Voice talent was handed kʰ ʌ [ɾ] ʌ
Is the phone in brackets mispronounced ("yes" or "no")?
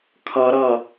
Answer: no